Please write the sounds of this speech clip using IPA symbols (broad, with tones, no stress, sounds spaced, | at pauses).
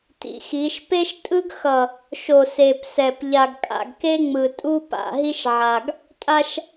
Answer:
t ḭ˨ x i˨˦ ʃ p e˦ ʃ tʼ ɯ˦ ɡ x ʌ˨ | ʃ o˨ s e˨ p s ɛ˨ p ʎ a˨ ɡ kʼ a̰˨ ɡ k e˦ ŋ͡m ɯ˨ tʼ u˦ p a̰˨ ɦ i˦ ʃ ʕ a˨ ɡ | tʼ a˦ ʃ